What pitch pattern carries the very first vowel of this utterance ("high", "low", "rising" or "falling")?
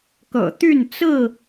low